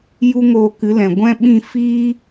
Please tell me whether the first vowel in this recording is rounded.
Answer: yes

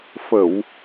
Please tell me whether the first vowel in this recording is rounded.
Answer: no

